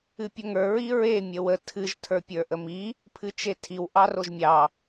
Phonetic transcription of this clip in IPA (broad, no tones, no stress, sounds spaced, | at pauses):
ɨ pʲ ʊ ŋ ə˞ ɹ i ɹ e mʲ ə w ə tʰ ɨ ʒ tʰ ə˞ pʲ ə˞ ʔ ə m i | pʰ ɨ t͡ʃ e tʰ i w ʔ ɑ r o ʒ mʲ ɑ